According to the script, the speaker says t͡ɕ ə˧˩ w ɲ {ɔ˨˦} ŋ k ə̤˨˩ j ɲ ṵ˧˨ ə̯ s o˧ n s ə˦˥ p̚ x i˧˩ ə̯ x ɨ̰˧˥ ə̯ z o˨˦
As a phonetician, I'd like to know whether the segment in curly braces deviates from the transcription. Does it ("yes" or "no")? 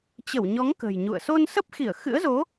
no